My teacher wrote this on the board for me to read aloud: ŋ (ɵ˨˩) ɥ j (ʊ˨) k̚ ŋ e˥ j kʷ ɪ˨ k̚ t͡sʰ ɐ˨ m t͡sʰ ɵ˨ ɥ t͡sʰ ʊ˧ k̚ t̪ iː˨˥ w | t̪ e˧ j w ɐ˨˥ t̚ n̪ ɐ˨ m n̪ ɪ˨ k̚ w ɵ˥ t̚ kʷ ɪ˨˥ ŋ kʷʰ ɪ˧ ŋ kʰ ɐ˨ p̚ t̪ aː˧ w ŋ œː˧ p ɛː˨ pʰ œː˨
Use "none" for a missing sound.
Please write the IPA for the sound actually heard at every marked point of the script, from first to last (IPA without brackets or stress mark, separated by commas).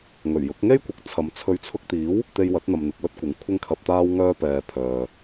ɵ˨˩, ʊ˨˥